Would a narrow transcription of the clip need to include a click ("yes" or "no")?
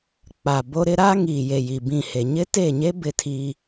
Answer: no